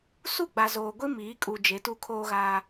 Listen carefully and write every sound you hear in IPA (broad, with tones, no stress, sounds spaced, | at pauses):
s u˦˨ ɡ͡b a˨ z oː˨ ɡʷ i˦ m iː˨˦ kʼ u˨ d͡ʒ e˨˦ t u˦ kʰ oː˦ ɣ aː˦